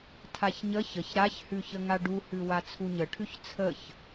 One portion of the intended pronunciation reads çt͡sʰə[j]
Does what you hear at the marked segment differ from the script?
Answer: yes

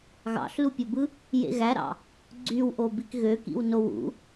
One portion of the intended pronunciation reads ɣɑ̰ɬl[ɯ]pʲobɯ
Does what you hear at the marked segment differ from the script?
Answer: yes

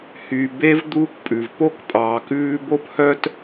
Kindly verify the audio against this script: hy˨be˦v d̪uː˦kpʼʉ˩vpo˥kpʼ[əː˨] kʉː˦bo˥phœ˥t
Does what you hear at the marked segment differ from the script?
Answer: yes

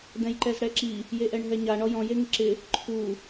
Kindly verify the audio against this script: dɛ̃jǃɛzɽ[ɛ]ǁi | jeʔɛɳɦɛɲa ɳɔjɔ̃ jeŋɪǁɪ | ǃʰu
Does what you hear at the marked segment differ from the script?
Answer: no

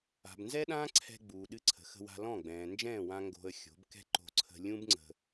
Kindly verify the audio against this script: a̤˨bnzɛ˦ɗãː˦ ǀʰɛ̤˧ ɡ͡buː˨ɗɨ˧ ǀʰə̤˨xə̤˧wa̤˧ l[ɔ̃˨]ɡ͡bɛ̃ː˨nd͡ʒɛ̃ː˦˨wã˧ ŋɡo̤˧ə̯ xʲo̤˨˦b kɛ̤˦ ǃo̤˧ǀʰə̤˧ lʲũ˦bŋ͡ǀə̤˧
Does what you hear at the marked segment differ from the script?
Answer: yes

